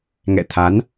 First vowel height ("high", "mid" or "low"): mid